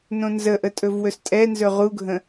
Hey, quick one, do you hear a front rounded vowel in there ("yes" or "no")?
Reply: no